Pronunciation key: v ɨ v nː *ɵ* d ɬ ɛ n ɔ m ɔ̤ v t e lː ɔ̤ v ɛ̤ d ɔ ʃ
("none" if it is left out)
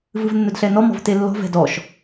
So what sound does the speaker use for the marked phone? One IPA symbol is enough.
ɵ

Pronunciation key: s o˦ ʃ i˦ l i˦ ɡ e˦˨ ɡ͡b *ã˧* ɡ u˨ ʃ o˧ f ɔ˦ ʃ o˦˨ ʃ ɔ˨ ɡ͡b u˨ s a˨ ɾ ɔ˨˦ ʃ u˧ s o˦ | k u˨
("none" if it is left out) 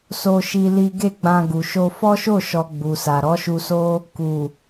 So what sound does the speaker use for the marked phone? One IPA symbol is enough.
ã˧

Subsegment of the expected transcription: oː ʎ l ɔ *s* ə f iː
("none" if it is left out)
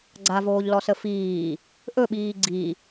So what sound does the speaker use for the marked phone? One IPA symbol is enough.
s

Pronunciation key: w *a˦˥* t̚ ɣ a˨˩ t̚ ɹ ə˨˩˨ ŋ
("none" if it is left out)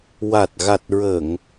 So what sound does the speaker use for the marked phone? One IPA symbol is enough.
a˨˩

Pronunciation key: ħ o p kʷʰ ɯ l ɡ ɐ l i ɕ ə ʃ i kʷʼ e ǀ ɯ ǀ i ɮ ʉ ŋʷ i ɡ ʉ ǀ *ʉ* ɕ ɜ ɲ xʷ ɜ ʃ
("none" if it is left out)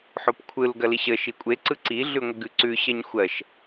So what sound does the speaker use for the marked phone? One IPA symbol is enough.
ʉ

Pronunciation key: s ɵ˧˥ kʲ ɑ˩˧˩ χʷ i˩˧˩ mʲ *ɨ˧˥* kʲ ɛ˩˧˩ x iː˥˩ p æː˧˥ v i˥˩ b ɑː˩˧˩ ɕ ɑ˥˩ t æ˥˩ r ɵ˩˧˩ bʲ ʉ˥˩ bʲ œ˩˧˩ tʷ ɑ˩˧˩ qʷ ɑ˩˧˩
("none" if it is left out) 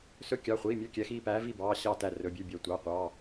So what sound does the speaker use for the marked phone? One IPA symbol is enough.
ʉ˧˥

